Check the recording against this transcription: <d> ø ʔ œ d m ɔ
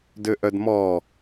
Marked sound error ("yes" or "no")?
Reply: no